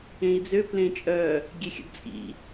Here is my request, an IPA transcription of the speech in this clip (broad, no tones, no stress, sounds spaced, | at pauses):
ẽ i̯ d͡z ø p l ẽ t͡ʃʼ œ | ɡʲ e xʲ ə̰ d t͡sʼ ḭ